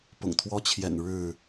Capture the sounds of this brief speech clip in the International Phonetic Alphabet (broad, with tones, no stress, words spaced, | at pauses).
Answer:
pʊ̰˨˩ŋt̪ʰwɔ˦t͡ɕʰjɛ̰˨˩n ɻɻ̩˥˨